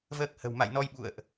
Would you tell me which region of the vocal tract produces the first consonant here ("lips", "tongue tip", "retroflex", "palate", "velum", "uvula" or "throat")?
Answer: lips